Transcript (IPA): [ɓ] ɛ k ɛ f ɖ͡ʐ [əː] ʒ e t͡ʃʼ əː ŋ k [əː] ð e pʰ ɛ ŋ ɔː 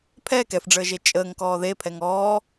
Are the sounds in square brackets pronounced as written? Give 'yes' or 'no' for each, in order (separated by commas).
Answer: no, yes, no